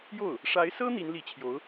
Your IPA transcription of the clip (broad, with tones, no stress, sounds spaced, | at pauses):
j o˥˩ ʊ̯ | ʂ a˧˥ ɪ̯ s ɤ˥ n̪ i˧˥ n l i˧˥ t͡ɕʰ j o˧˥ ʊ̯